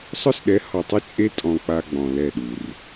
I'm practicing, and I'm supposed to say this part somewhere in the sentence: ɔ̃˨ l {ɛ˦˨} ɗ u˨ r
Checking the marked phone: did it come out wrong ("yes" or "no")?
no